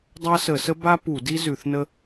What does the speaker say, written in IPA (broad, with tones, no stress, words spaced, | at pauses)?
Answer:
dˤa˥sə˧˩˧sə˥ ba˥ pu˧˩˧di˥ zʉ˧˩˧θnə˥